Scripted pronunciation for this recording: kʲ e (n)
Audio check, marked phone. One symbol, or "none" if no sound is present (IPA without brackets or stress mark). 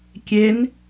n